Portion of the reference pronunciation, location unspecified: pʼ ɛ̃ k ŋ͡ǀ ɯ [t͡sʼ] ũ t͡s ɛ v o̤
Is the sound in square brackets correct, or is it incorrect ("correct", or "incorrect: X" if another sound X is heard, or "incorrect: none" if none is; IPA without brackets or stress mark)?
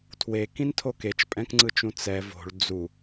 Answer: incorrect: t͡ʃ